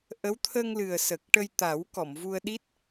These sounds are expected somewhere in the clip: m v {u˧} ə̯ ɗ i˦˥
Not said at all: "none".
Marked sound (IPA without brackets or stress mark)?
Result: u˧